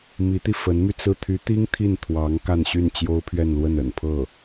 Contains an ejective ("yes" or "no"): no